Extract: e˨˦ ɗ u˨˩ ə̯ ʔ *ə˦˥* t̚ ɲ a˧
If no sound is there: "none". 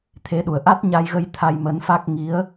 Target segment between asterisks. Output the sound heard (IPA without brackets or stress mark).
a˦˥